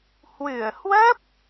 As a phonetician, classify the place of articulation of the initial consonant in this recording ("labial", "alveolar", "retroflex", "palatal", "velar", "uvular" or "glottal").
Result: glottal